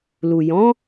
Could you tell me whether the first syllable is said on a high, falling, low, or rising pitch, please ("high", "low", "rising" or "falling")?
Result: low